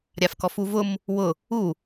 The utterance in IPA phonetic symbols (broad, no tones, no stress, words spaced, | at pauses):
ɾʲafkɔfuvʊm | wʊ | u